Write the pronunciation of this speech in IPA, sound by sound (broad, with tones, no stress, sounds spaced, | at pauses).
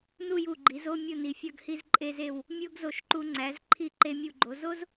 n u˥˧ j u˧˩ ɡ͡ǃ i˩˧ z o˥˧ mʲ o˥˧ n i˩˧ fʲ ɒ˥˧ ɡ h i˥˧ z ǃʼ e˧ z e˧˩ w | mʲ o˥ ɡ z o˧˩ ʃ ǃ u˧ ŋ͡ǀ æ˩˧ z ǃʰ i˧ ǃ e˧ mʲ u˧˩ ɡ͡ǃ o˩˧ z o˥ z